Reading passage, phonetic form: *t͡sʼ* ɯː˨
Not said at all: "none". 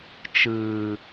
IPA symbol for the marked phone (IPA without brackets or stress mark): t͡ʃ